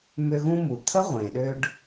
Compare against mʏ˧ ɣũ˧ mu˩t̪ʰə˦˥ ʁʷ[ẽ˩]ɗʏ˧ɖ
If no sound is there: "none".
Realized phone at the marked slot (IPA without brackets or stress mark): ẽ˩